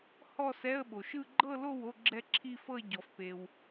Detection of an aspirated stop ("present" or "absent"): present